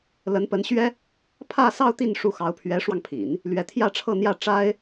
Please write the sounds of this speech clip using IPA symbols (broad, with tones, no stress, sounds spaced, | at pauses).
l ə˧˥ n p ə˧˥ n ɕ ɥ ɛ˥ | pʰ ä˥˧ s ɑ˥˧ ʊ̯ t̪ i˥˧ n ʂ u˥˩ x ɑ˧˥ ʊ̯ pʰ ɥ ɛ˧˥ ʂ w ɑ˧ ŋ pʰ ḭ˨˩˦ n | l ɥ ɛ˧˥ t̪ʰ j ä˥˧ ʈ͡ʂʰ ɤ˥˧ n̪ j ä˥˩ ʈ͡ʂ a˥ ɪ̯